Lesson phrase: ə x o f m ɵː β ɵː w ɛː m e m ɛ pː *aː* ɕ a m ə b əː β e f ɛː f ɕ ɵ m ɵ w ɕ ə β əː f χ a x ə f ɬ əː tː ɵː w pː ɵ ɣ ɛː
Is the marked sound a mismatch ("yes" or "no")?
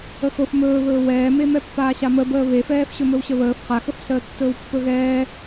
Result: no